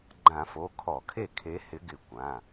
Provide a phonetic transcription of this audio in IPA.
ɡ͡ǃ ã˧˩˧ f o˩˧˩ kʰ ɔ˧˩˧ kʰ e˥˩ kʰ e˨˦ h ɪ˨˦ ɡ ɪ˧˩˧ kʷ ã˩˧˩

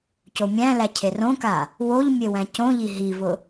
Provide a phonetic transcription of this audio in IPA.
c o mʲ æ̃ l æ cʰ e r õ k a | w o ʎ mʲ e w æ̃ c õ ʎ i ɦ i v ʊ

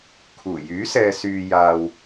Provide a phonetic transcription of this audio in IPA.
kʰ uː˨˩ j yː˨˥ s ɛː˨ s yː˨ j aː˨ w

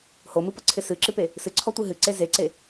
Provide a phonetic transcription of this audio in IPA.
h o m ɨ p ʌ ǀʰ ɪ s ɨ ǁ ɨ p e | s ɨ ǀʰ ɔ tʷ ɨ ɦ ɨ ǀ e z e ǀ e

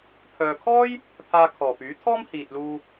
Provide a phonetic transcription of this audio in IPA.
pʰ œː˨ kʰ ɔː˥ j | pʰ aː˧ kʰ ɔː˨˩ p yː˨˥ t̪ʰ ɔː˥ m h iː˨ t̚ l uː˧

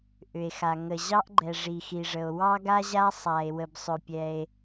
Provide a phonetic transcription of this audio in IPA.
ʔ ʏ˩ e̯ x a˩ ŋ ə˩ ʑ ɑ˥ ʔ ɡ͡ǃ ɛ˩ ʐ i˩ x i˩ ʐ ə˩ o̯ w ɑ˥ ɡ a˥ ʑ a˥ sˤ a˩ e̯ w ə˩ b sˤ ʏ˩ pʲ ɛ˩ e̯

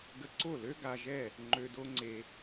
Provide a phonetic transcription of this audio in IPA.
ɡ ə˧ ǀ o˦˨ l ø˦ ɡ a˧ ʒ ɛ˦˨ | ŋ͡ǃ ø˧ d o˦ ŋ͡ǀ e˧

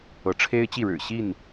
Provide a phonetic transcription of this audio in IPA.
ɤ˨˦ ʈ͡ʂʰ e˦ ɪ̯ t͡ɕ i˥˨ ɻ ɻ̩˨˩ ɕ i˥˨ n

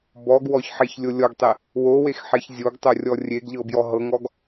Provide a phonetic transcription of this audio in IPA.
b ɔ ɡ w ɔ ç ħ e ç lʲ o lʲ ɔ ɡ tˤ e | w o w e x ħ e ç zʲ o ɡ tˤ o rʲ ɔ rʲ e ɡ ʎ ɤ b j ɔ ɦ ɤ ŋ ɔ ɡ

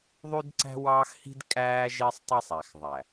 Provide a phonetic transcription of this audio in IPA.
ðˤ y˦ d ǀ æ̤˦ w ɑː˦ x h i̤˦ d kʼ æː˦ ʒ e˦ sˤ tˤ e˦ sˤ æ˨ x ðˤ æ˨

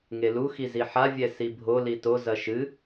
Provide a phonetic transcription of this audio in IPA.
ŋ e l u x i z i ħ a vʲ ɛ s i bʱ o l i t o z ɐ ʃ ɨ

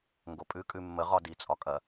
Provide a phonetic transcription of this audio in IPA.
ŋ ɡ o pʼ ʉ kʼ ʉ mː ə ʁ ɒ d i t͡sʼ ɒ kʼ ɐ

